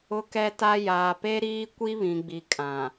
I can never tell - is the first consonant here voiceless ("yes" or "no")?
yes